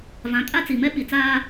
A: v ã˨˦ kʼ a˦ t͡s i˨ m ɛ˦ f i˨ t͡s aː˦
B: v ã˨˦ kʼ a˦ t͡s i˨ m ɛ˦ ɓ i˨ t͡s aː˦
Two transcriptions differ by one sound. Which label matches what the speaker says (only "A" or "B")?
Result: B